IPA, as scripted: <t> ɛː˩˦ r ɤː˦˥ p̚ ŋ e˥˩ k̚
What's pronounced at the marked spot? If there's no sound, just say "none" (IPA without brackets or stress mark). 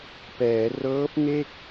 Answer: p